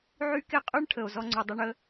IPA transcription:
ʕ y˥ k e˥ qʼ y˥ ɳ ʈʰ ə˩ o̯ z ɔ˥ ŋ͡ǀ u˩ dˤ ɪ˥ ɳ ə˥

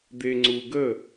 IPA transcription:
d̪ e ŋ͡ǀ u ɡ ə

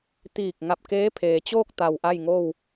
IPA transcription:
t̪ iː˧˩ k̚ ŋ a˧˩ p̚ k eː˧˥ pʰ eː˩ t͡ɕ oː˥˨ k̚ t̪ a˧˩ w ʔ a˥˨ j ŋ o˥˨ w

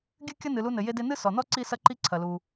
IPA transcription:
ɡʲ ɨ˥ kʲ ɐ˥ n ɨ˩ l u˧ n ɘ˩ j e˧ d e˧ n ɨ˥ s ɔ˩ n ɔ˥ ǀ i˥ s ɐ˥ ǃ i˥ ǀʰ ɐ˩ l u˩

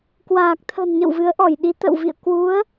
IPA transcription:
k w aː˨˩ k̚ t̪ʰ ə̤˨˩ n ɲ ə̰˧˨ w v ɨ˨˦ ə̯ ʔ ɔ˧˩ j ɗ i˨˦ t̪ ə̰˧˨ w v ḭ˧˨ ə̯ k w u˨˦ ə̯

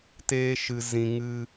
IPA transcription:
t eː˦ ʃ ɨ˧ z ĩ˧ ŋ ɨ˧

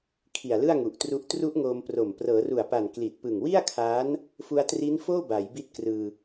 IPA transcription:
kʰ i˨˩ a̯ l ɯ˥˩ a̯ ŋ u˨˩ ʔ t r u˦˥ ʔ t r u˦˥ ʔ ŋ oː˧ m p r o˨˩ m p r ɤː˩˦ r u˨˩ a̯ p a˨˩ n k l i˨˩ t̚ p ɯ˨˩ ŋ w i˥˩ a̯ kʰ aː˦˥ n | f u˧ a̯ t r i˦˥ n f oː˥˩ b a˩˦ j b i˦˥ t̚ k r ɯː˧

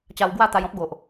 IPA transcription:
t͡ɕ a˧ w ɡ w a˥˧ t̪ a˧ j ɔ̃˦ p̚ ɡ o˨ ʔ

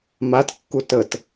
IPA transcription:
m a t kː u t ə t

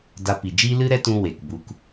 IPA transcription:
d a˧ p i˨ d͡ʒ iː˦ l ɨ˦ ɾ ɛ˦ t ũ˧ w e˨ k b u˧ k

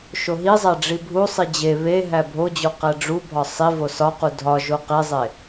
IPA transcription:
ʃ o ɦ i zˤ æ ɖ͡ʐ i bʱ u sˤ i d͡ʑ e β e ɦ æ bʱ o d͡ʑ o q æ ɖ͡ʐ u bʱ ɒ sˤ i v o s ɒ q u dʱ ɒ ʒ o q e zˤ e

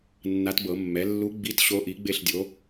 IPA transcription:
nː a˧˥ t b ɤ˨˩˦ mː ɛ˩˥ lː u˧˥ ɡ͡b i˧˥˧ t ɕ o˧˥ ʔ i˩˥ ɡ͡b e˥˧ ɬ dʲ o˩˥

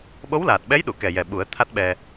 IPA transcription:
ɓ o˧˥ w l aː˨˩ t̚ ɓ ɛ˧˥ j ɗ u˨˩˨ k ɛ˨˩ j ɛ˨˩ ɓ u˨˩˦ ə̯ t̪ʰ a˦˥ t̚ ɓ ɛ˧

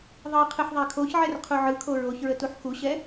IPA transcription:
ðˤ ɯ qʰ ɯ ħ ðˤ ɛ kʰ o ç ʕ ɛ r qʰ u ʕ ɯ kʰ o ɹ o ç ɹ ə t u ħ x u ɕ ɛ

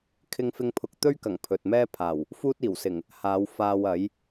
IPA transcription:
kʰ ɪ˥ ŋ f ɪ˥ ŋ pʰ ʊ˧ k̚ t̪ ɵ˥ ɥ k ɐ˨˩ ŋ pʰ ɵ˨ t̚ m ɛː˥ pʰ aː˨˩ w | f uː˥ t̚ iː˨˩ w s ɪ˨˩ ŋ | h aː˨˧ w f aː˧ w ɐ˨˥ j

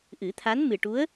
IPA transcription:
ʔ ɨ˨˩˦ t̪ʰ a˧˥ n m ɨ˨˩ ʈ u˧˥ ə̯

